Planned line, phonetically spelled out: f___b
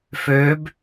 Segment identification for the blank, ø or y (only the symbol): ø